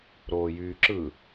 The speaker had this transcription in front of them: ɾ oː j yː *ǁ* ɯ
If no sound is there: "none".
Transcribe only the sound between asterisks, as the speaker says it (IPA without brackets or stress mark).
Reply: ǁ